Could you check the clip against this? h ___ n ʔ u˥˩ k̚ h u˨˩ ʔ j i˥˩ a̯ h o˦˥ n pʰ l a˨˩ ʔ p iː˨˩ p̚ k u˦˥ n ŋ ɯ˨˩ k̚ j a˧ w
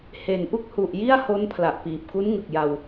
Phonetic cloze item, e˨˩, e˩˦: e˩˦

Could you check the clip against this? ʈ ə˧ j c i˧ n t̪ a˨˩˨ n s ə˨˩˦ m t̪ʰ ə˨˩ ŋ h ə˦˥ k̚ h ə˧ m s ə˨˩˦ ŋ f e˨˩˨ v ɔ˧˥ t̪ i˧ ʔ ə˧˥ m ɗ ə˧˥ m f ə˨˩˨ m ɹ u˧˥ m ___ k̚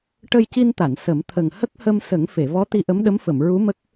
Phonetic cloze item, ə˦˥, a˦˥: ə˦˥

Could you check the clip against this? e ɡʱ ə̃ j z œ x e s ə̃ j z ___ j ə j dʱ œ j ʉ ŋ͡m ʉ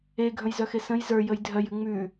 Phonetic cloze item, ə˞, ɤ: ə˞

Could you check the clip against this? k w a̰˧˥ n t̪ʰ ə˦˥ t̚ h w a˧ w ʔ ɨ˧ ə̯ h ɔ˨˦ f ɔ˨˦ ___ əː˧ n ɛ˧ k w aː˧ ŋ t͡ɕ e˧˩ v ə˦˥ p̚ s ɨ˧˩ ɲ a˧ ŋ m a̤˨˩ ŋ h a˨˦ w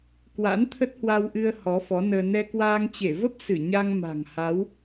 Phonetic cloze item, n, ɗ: n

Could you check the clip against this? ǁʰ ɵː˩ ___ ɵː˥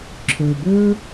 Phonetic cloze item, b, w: b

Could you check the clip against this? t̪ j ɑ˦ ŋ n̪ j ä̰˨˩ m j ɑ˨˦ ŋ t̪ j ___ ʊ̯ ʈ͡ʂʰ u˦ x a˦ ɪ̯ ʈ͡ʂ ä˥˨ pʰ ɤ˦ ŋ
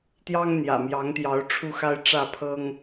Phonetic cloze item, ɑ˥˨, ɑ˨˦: ɑ˨˦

